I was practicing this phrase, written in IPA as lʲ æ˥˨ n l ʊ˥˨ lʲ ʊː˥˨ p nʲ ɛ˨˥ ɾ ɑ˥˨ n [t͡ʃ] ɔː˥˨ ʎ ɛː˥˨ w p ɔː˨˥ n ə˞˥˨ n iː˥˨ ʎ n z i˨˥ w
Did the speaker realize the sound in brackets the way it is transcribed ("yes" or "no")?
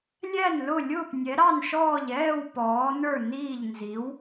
no